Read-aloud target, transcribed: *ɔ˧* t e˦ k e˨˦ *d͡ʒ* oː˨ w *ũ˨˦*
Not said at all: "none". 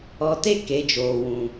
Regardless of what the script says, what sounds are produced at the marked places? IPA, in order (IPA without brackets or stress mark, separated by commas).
ɔ˧, d͡ʒ, ũ˨